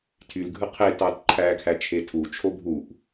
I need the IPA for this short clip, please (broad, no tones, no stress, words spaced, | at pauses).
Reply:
tʰylɡʱɯ qʰe tɑtǃʰækʰæ t͡ʃʰetʰut͡ʃʰo bʱuʔ